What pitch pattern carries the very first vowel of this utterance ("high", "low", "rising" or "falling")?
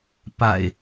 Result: low